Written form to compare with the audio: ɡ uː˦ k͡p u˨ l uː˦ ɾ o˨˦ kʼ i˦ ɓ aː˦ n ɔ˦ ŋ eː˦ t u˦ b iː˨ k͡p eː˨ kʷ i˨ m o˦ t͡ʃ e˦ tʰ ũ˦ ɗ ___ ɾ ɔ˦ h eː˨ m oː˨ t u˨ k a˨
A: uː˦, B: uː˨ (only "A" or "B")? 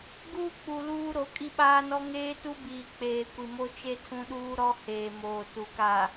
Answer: A